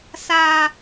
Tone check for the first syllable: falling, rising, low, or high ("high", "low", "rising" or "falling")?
high